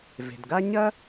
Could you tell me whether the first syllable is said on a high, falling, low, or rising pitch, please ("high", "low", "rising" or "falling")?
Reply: low